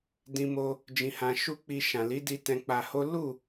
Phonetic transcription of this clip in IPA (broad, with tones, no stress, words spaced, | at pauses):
dĩ˧mo˧ | d͡ʒĩ˧hã˧ ʃu˦k͡pi˧ ʃã˨ li˨˦di˧tɛ̃˧k͡pa˧ ho˦ lu˦˨